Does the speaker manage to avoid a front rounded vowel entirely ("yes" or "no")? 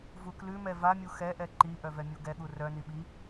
no